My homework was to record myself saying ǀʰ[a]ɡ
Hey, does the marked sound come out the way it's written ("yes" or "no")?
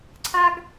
yes